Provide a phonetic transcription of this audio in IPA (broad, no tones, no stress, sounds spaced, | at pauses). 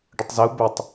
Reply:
ɖ ə tˤ z ɪ u̯ b ɪ tˤ